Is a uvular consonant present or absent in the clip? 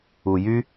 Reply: absent